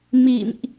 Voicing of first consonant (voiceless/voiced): voiced